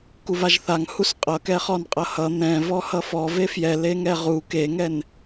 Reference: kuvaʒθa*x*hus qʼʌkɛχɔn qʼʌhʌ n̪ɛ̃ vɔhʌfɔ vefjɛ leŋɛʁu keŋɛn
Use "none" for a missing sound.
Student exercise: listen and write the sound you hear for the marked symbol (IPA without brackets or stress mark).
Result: ŋ